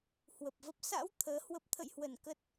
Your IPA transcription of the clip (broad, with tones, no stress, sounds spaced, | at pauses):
h w ə˨˩ p̚ v ə˦˥ p̚ s a̰˧˥ w t̪ʰ əː˨˦ h w ə˦˥ p̚ t̪ʰ ə̰˧˨ j h w ə˧˩ n k ə˦˥ t̚